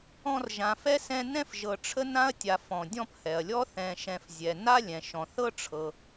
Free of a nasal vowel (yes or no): no